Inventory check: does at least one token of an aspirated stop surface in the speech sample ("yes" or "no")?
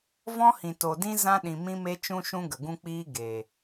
no